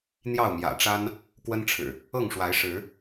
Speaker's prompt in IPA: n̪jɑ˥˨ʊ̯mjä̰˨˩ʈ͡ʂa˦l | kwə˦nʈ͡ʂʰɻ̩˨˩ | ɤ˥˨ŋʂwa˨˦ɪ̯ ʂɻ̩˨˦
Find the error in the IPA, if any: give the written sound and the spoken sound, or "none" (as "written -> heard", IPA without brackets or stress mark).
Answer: l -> n